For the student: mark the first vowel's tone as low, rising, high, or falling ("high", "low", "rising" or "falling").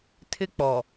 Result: high